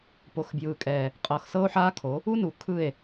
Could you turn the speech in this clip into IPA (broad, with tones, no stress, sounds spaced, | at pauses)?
p o˨ x b j ɯː˨ kʼ ɛː˨ | qʼ ɤ˨ x s ɤ˦ o̯ ħ aː˦ kʰ o˨˦ | u˦ n u˨ kʰ ɯ˦˨ e̯